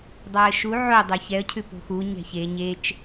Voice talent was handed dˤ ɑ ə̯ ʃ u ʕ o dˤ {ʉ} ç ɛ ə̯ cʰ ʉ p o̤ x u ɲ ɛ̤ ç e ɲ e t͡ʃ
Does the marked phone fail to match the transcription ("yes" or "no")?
yes